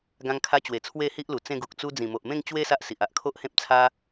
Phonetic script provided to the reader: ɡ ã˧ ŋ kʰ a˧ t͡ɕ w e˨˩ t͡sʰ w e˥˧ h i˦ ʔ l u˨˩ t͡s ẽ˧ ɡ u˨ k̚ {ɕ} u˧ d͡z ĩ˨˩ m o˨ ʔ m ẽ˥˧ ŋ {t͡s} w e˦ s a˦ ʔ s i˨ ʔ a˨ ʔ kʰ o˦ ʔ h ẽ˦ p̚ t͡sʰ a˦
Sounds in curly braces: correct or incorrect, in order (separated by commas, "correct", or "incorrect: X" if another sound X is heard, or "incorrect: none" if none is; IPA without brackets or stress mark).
incorrect: t͡s, incorrect: t͡ɕ